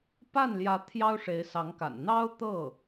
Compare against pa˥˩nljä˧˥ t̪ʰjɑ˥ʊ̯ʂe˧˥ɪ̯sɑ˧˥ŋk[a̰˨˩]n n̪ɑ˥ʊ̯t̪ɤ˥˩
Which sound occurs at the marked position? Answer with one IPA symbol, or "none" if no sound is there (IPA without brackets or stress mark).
a̰˨˩